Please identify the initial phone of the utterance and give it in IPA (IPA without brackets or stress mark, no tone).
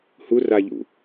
h